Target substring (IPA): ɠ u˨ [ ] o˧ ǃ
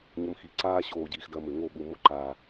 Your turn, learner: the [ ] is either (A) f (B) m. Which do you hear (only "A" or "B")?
B